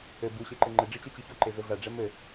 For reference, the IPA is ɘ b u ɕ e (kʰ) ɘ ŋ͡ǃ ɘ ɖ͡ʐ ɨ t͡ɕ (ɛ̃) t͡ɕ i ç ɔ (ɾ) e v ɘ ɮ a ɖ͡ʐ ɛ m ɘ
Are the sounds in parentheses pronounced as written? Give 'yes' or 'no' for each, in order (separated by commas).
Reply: no, no, no